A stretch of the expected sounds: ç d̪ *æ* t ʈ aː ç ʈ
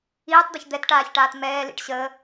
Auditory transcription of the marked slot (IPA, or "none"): ɛ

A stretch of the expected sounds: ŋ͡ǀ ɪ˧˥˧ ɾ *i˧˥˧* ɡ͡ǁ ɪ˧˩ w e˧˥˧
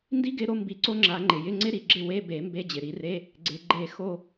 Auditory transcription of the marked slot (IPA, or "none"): i˩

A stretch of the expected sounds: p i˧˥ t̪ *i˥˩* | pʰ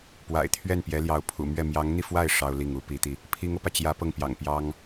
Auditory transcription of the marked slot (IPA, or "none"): i˧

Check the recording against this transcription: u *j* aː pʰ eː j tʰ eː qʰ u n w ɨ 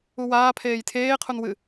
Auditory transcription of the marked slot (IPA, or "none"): w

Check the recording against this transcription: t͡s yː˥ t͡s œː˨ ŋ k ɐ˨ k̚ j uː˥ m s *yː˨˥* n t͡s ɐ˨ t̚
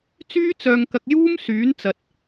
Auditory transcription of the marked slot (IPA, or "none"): yː˨˥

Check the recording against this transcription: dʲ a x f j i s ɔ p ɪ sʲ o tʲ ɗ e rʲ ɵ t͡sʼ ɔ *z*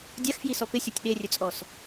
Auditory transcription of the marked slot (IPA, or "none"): s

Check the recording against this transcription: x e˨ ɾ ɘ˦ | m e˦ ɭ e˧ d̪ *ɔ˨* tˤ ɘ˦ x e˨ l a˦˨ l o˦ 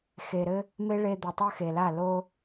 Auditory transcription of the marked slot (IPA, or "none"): o˨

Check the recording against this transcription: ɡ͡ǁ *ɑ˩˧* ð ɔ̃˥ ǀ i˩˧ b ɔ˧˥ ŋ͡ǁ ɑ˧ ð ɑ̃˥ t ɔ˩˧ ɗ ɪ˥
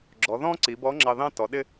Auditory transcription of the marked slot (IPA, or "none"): ɔ˩˧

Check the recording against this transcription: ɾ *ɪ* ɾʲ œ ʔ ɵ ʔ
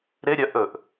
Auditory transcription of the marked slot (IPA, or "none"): ɪ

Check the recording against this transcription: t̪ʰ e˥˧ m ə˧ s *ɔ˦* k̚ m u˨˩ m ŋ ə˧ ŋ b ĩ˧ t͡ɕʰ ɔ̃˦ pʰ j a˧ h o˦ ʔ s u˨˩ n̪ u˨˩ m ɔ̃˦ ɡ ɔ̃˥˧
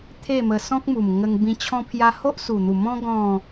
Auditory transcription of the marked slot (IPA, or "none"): ɔ̃˦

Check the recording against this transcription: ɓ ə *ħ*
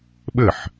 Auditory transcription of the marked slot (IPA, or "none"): ħ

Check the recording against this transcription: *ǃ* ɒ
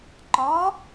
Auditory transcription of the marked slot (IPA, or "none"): ǃ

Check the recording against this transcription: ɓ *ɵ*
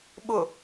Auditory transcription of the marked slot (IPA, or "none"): ʊ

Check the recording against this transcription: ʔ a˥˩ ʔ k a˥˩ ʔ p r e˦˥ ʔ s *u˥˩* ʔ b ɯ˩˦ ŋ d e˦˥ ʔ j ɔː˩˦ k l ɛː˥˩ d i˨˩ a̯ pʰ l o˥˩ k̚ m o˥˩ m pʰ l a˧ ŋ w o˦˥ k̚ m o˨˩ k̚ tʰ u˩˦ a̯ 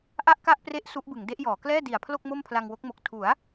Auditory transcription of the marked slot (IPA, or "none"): u˦˥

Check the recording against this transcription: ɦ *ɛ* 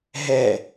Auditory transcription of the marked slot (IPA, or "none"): ɛ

